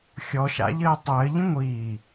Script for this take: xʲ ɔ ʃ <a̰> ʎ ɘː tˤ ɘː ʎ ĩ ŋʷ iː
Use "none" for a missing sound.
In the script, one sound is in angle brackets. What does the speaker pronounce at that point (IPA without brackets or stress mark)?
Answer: a̰